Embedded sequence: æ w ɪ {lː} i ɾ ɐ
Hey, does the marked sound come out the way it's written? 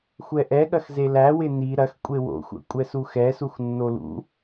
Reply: no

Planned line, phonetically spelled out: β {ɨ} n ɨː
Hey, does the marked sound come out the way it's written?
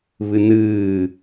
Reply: yes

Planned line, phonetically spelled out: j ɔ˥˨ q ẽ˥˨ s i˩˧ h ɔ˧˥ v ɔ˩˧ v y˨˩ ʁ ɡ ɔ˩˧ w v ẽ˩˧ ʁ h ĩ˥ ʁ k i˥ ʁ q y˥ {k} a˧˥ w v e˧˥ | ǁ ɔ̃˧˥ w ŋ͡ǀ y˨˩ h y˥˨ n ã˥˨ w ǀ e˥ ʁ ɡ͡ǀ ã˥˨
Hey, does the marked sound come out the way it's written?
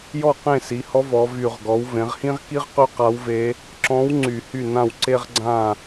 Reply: no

